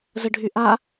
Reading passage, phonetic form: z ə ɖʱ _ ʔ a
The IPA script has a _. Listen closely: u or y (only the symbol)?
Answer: y